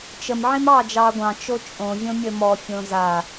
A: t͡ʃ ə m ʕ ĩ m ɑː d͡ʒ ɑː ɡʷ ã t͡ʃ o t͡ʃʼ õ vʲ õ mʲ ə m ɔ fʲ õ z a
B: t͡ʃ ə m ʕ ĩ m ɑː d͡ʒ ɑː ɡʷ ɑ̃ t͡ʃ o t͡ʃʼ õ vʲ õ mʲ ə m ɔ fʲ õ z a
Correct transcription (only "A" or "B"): B